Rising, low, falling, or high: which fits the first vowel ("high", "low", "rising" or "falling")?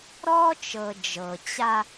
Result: high